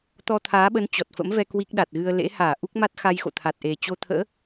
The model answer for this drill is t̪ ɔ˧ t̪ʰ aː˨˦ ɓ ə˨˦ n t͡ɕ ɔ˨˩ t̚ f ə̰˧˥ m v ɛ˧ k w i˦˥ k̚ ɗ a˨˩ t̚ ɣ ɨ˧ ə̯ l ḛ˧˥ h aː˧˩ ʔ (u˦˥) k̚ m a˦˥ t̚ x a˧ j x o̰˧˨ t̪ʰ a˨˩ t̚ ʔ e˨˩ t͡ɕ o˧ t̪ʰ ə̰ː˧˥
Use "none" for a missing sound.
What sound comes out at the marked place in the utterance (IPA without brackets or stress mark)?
u˦˥